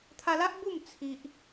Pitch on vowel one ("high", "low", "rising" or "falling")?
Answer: high